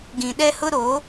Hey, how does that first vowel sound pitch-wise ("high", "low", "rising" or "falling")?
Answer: low